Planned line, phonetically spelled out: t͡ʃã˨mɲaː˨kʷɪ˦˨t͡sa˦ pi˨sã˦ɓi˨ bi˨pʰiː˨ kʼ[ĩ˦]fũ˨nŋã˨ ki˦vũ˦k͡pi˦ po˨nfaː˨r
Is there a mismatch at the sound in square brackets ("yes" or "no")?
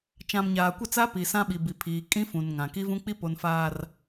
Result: no